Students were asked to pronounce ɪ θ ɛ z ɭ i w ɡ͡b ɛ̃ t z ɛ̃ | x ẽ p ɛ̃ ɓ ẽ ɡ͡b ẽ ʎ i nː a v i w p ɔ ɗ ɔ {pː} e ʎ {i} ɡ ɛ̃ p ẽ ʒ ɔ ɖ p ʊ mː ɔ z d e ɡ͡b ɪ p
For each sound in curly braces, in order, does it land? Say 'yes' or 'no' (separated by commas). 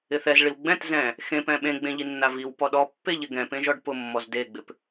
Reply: yes, no